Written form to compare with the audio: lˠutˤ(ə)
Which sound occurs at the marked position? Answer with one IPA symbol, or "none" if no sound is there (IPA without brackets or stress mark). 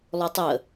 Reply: ə